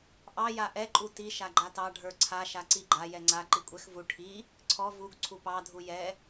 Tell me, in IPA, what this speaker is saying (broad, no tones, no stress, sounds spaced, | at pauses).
ʔ ɑ j a ʔ ɛ ǃʼ u t i ʃ a ɡ͡ǃ a t ɑ ɖʱ ə˞ ǀʰ a ʃ a ǀ i ɡ͡ǃ a j ɛ ŋ͡ǀ a ǃ i kʷʼ ɛ x v u ʈʰ i | ǀʰ ɔ v u ɡ ǀʰ u p ɑ dʱ u j ɛ